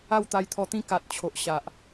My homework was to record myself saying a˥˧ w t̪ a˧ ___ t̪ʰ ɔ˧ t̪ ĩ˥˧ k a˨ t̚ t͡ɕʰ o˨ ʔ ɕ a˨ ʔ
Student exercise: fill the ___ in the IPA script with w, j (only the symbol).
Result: j